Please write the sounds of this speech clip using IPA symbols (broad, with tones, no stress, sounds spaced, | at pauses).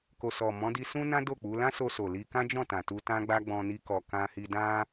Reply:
k o˨ s ɔ˨ m ɔ̃˨˦ d i˧ s ũ˦ n ã˦ d o˦˨ k͡p u˨˦ l ã˦ s o˧ s o˨ l i˧ k ã˦ d͡ʒ ɔ̃˦˨ t ã˨ t u˧ t ã˦ ɡ͡b a˦ ɡ͡b ɔ̃˧ n i˦ k ɔ˧ k ã˦ h i˦ d ã˦